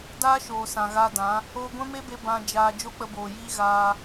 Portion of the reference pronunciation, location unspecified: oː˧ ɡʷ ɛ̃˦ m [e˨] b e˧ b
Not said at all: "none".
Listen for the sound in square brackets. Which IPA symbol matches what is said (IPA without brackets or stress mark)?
e˦